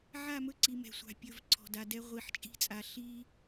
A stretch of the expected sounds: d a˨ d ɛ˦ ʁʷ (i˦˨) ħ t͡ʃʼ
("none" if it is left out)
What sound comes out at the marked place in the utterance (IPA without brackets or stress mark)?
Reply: i˨